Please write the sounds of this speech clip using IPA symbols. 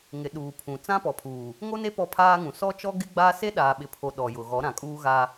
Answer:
ŋ ɪ˨ ɗ uː˨ pʰ ũ˨ t͡s ã˦ p ɔ˨ pʰ uː˨ | ŋ o˦ n e˦ p ɔ˦ pʰ aː˦ ŋ ũ˨ s ɔ˦ t͡ʃ ɔ˦ ɡ ɪ˦ ɡ͡b a˦ s e˦ ɗ aː˨ ɓ ɪ˨ pʰ o˨ ɗ ɔ˨ j ʊ˨ ɣ ɔ˨˦ ɾ ã˨ kʼ uː˦ ɣ a˦

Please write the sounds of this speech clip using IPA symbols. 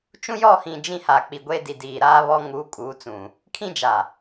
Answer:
t͡ʃ ũ˦ j ɔ˦˨ h ĩ˨ d͡ʒ ĩ˦ h a˨ k͡p i˨ ɡʷ e˦ d i˨ d iː˨ ɾ aː˦ β ɔ˦ ŋ uː˨˦ kʼ uː˨˦ t͡s ũ˨ | kʰ ĩ˦ d͡ʒ a˨

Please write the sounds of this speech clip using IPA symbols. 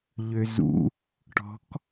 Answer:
ʎ ø z ṵ | ʈ ɔ̤ k

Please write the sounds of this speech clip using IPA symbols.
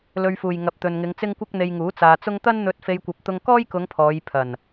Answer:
l ɵ˧ ɥ f uː˨ j ŋ ɐ˨ p̚ t̪ ɵ˨ n ŋ ɪ˨˧ ŋ t͡s ɪ˥ ŋ kʷ ɐ˥ k̚ n̪ e˧ j ŋ uː˨˥ t͡s aː˨ t͡s ʊ˥ ŋ t̪ ɐ˥ n n̪ ɵ˧ t̚ f e˧ j kʷ ɐ˧ p̚ t̪ ʊ˧ ŋ k ɔː˥ j k ʊ˨˧ ŋ pʰ ɔː˨˧ j pʰ ɐ˨˩ n

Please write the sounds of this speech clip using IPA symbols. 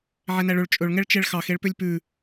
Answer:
ʕ ɛ n æ ɭ ɵ ɭ t͡ʃʼ ɵ ɭ ŋ ɛ ɭ t͡ʃ ɛ ɭ x ɑ x e ɭ p ø lʲ p ʉ

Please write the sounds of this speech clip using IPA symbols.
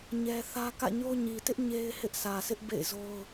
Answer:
ɲ ɛ˦ θ ä˦ k ä̰˦˨ ɲ o˦ ɲ i˨ t ɪ˦ ʔ ɲ e˦ ɪ̯ h ɪ˦ ʔ sʰ ä˨ sʰ ɪ˦ ʔ b ḛ˦˨ ɪ̯ z o˦ ʊ̯

